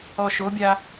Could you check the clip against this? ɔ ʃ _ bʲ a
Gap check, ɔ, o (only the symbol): o